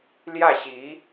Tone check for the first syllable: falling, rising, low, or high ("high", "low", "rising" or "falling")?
falling